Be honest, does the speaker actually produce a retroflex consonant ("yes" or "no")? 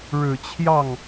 yes